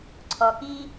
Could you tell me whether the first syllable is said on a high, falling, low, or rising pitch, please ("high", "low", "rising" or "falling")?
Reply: low